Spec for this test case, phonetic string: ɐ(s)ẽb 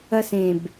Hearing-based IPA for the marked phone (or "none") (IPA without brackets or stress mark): s